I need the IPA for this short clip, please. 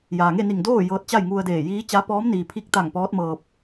jaː˩ŋe˥˨ni˧˩ŋdoː˥˨ jɤː˧t̚t͡ɕa˥˨j ŋu˧ə̯deː˧˩jiː˧˥t͡ɕa˧˥ pɔː˧˥m niː˩ pʰi˧˥k̚t̪a˧˩ŋ pɔː˧˥t̚mɤː˧p̚

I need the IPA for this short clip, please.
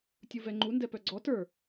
tʲuvɛŋ͡ǃu ndɛpœɡ͡ǀɔ tə˞

